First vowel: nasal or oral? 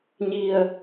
oral